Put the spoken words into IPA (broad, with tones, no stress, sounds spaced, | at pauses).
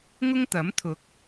ŋ ʊ˥ ŋ t̪ ɐ˨˥ m t̪ʰ ʊ˨˥ k̚